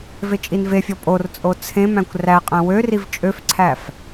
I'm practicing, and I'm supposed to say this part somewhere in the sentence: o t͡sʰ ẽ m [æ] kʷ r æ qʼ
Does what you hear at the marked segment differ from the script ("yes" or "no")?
yes